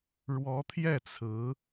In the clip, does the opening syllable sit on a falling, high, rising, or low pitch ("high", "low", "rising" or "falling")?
rising